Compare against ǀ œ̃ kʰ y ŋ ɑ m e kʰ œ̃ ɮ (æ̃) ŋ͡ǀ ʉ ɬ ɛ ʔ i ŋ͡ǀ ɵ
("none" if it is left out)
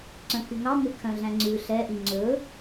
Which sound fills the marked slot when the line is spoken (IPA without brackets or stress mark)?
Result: æ̃